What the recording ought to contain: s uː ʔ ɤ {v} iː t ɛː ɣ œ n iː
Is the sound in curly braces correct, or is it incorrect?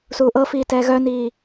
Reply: incorrect